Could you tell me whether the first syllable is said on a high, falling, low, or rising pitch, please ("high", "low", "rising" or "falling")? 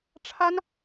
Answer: high